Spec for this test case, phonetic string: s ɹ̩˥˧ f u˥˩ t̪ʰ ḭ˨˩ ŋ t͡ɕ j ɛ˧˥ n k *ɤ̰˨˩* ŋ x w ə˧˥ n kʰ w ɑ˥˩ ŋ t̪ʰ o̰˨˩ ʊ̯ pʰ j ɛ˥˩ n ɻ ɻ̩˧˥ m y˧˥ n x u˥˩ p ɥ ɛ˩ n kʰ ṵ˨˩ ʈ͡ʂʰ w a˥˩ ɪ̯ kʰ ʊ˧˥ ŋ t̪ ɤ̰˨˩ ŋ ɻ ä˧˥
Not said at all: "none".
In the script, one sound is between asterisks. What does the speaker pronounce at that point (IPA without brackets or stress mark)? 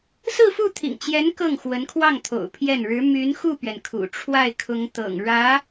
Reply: ɤ˥˩